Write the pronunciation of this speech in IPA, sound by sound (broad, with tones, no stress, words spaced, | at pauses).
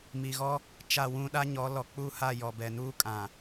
mi˨ɣɔ˦ | t͡ʃa˦˨wũ˦ ɗa˦ɲɔ˨˦ lɔ˨k͡pu˦˨ha˦˨ jɔ˨bɛ˨nuː˦kʼã˨